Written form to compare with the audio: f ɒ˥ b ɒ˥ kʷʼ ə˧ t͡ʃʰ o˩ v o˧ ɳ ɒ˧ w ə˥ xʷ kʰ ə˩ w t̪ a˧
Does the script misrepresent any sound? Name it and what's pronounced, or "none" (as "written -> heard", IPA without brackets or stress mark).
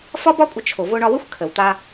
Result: none